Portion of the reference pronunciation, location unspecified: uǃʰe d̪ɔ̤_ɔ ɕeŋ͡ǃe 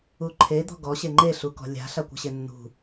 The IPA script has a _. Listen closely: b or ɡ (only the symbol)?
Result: ɡ